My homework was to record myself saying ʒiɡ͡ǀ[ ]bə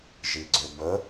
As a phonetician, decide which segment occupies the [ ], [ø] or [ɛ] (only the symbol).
ø